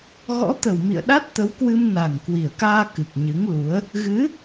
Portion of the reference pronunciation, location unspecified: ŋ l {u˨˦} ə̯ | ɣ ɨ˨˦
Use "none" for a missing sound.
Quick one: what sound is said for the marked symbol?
u˨˦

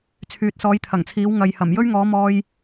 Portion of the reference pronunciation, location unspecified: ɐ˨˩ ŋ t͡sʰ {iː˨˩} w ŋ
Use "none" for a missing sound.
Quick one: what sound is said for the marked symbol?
iː˨˥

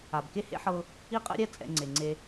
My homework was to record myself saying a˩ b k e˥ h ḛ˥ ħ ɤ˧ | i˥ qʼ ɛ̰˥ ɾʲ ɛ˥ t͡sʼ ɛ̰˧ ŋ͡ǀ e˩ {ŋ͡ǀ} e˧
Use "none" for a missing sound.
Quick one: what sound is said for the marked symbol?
ŋ͡ǀ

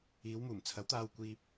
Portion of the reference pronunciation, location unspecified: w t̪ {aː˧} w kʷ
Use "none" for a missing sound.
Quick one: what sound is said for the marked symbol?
aː˧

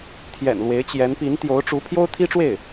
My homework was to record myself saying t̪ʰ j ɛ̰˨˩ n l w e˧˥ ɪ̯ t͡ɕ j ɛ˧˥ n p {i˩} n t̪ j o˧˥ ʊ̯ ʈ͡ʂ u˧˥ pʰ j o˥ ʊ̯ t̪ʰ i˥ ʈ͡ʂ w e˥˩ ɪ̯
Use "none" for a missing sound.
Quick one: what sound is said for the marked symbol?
i˧˥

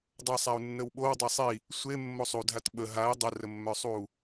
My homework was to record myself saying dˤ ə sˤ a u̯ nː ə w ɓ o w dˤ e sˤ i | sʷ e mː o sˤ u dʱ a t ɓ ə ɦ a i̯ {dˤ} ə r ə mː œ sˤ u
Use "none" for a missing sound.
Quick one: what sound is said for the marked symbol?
dˤ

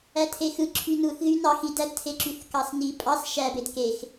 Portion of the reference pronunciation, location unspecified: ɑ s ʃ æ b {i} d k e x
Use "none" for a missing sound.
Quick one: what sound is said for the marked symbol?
e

